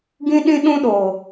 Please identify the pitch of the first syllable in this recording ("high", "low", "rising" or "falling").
high